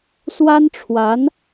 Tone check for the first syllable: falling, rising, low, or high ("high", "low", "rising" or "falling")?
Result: high